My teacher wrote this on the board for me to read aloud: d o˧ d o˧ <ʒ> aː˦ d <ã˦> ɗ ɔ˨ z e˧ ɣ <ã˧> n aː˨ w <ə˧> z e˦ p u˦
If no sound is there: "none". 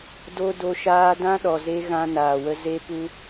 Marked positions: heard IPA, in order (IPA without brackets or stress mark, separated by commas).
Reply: ʃ, ã˦, ã˧, ə˧